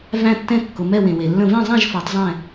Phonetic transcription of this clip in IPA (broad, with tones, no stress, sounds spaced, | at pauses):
v æ̃˧˩ tː ɛ̃˧˩ kː ʊ˩ m ɛ˧˩ w ẽ˩ w e˩ lː ə̃˧˩ v ẽ˥˨ zˤ æ̃˥˨ ʒ f o˩˧ tˤ zˤ ɛ̃˧˩